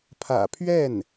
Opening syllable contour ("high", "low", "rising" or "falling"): low